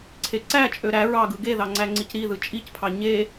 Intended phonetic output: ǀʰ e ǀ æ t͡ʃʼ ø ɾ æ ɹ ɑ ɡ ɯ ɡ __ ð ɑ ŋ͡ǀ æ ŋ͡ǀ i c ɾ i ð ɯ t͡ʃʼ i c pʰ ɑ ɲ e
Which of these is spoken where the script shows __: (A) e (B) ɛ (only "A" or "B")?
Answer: A